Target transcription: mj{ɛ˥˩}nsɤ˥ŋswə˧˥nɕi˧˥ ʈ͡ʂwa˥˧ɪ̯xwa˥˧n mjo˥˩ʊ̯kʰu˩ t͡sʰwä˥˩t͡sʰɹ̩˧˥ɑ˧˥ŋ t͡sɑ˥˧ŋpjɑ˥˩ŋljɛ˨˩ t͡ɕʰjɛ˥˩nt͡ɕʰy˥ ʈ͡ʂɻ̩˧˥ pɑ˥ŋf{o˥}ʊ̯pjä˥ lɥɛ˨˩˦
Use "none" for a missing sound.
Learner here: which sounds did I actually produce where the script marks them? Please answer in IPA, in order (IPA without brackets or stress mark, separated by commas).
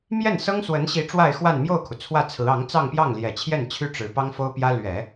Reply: ɛ˥˩, o˥